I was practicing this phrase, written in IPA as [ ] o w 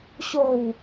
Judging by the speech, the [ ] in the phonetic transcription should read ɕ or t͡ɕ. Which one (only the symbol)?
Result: ɕ